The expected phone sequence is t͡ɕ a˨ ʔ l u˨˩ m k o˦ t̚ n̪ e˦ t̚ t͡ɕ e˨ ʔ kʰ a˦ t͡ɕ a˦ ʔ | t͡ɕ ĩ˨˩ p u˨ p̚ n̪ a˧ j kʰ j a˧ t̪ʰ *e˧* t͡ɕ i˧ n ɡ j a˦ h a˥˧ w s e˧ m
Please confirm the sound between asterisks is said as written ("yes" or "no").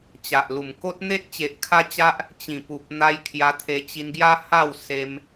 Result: yes